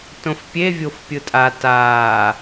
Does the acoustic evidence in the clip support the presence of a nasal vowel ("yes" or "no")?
yes